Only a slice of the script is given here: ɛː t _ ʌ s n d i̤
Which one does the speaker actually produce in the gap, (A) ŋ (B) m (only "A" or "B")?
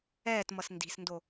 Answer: B